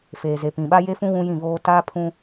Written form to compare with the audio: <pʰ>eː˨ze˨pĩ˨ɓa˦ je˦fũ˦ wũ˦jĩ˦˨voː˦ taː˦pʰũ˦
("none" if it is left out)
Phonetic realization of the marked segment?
f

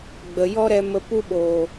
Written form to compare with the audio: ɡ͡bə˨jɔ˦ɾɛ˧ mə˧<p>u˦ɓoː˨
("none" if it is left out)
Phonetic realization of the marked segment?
p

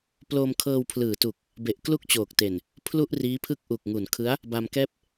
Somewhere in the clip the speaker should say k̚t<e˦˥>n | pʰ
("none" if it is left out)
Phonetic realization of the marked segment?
e˨˩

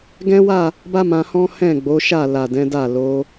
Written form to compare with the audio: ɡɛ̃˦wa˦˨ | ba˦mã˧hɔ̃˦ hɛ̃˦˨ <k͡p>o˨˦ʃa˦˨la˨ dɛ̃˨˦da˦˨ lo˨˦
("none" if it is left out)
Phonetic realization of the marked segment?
ɡ͡b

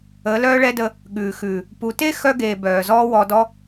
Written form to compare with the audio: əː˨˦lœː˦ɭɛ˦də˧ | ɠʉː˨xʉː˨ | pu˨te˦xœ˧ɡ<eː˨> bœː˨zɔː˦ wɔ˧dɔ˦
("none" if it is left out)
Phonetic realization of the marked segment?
eː˨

